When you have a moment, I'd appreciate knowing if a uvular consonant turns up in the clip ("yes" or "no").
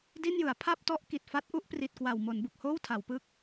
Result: no